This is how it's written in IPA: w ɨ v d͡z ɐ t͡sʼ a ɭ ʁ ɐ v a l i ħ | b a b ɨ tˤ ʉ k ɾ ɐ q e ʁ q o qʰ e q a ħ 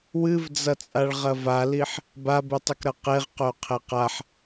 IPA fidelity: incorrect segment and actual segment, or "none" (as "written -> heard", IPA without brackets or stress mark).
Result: none